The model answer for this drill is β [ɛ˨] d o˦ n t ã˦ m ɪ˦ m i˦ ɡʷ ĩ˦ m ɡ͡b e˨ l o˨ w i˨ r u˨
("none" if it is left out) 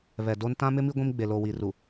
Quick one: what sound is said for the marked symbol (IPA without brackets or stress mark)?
ɛ˨